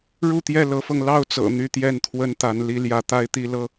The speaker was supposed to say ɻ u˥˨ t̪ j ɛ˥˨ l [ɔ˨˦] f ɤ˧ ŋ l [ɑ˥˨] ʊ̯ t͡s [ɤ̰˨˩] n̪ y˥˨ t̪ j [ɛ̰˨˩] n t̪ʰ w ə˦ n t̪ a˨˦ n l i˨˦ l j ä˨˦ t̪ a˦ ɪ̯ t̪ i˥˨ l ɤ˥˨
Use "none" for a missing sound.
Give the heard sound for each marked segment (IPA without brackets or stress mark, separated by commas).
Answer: ɤ˨˦, ɑ˥˨, ɤ̰˨˩, ɛ˥˨